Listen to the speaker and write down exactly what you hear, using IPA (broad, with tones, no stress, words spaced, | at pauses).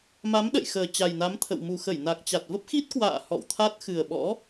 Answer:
ma˨˦mɗə̰˧˨jxəː˨˩ t͡ɕa˨˩jna˨˦mt̪ʰə̰˧˨w mu˨˩xə˧˩jna˨˩k̚ t͡ɕa˨˩t̚və˦˥p̚xi˦˥t̚kwa̰ː˧˨ hɔ̰˧˨wt̪ʰa˦˥t̚ xɨ˨˩ə̯ɓɔ̰˧˥